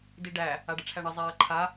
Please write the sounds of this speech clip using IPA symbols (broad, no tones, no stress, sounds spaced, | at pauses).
d i ɖ æ | a ɖ ə ʈ͡ʂʰ æ ɳ ə zˤ aː ǃʰ a